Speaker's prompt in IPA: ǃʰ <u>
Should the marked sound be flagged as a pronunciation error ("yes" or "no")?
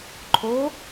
yes